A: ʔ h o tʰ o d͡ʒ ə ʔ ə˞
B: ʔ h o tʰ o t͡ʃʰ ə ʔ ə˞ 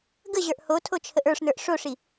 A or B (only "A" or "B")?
B